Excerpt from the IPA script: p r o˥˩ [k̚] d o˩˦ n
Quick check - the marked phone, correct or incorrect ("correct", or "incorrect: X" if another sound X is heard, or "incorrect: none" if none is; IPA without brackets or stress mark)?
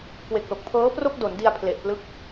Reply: correct